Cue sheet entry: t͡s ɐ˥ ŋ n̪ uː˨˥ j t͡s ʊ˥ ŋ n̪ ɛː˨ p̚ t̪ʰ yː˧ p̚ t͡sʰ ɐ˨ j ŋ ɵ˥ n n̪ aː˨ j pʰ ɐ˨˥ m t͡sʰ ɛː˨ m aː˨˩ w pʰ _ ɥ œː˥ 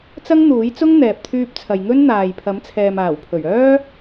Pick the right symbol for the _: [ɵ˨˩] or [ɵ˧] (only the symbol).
ɵ˨˩